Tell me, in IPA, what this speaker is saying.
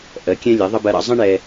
ʔ ɜ˨˦ kʲ ɛ̃˦ lʲ ɛ˨˦ ðˤ ə˦ b ɜ˧ ɾ ɑ̰˧ zˤ ə̃˦ ɳ ɛ˧

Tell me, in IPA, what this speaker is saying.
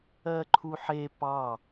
ɜ ǃʰ u ħ e p ɑ

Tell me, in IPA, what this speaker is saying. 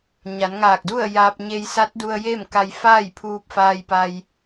ɲ a˩˧ n ŋ aː˧˩ k̚ d u˥˨ ə̯ j aː˧ p̚ ɲ e˧ j s a˧˥ t̚ d u˧ ə̯ j e˥˨ m k a˧ j f aː˥˨ j pʰ uː˧ p̚ f aː˧ j p a˧ j

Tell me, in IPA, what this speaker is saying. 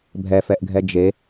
bʱ ɛ f ɛ ʔ ɡʱ ɛ d͡ʒ e

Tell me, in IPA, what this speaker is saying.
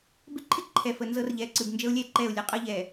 b ɪ˦ ǃʰ ɪ˦ ǃʰ ɛ˨ f ə˨ n z ɤ˦ r ʎ ɛ˨ ǀ ɨ˨ b n d͡ʒ ə˦ ʊ̯ lʲ ɛ˦˨ ǃ ɛ˦˨ ʊ̯ lʲ ə˦ qʼ ɤ˦ ʎ ɛ˨

